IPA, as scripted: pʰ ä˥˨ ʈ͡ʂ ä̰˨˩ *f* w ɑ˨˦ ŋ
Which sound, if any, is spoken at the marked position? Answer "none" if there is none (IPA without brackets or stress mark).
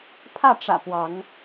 p